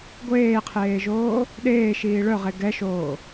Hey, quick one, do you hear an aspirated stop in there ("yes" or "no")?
yes